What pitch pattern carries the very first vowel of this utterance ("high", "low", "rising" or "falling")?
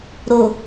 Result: low